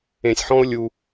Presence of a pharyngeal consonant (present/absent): present